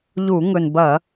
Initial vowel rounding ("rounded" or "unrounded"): rounded